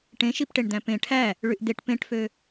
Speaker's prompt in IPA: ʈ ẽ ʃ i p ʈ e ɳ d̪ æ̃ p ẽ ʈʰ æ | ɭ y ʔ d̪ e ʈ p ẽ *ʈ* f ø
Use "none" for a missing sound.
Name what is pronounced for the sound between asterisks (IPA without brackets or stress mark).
ʈ